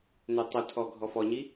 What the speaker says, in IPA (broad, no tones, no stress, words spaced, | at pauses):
nøtˤʊtʰɔ ɡʱɔfɔɲi